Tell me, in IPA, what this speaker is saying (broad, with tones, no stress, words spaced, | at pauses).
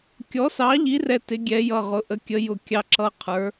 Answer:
kʲɔ˩˥sɑ˩˥ʎi˩˥rɛ˩˧˩ tɪ˩˧ɡʲɛ˩˧jʌ˩˧˩ʁʊ˩˧ ʔə˩˥kʲə˩˥jʊ˧kʲɑ˧ ǁʌ˧ qʰə˞˩˧